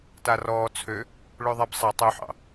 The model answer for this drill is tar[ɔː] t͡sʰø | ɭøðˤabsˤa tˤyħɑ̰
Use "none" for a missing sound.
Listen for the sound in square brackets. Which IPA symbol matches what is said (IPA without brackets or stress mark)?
ɔː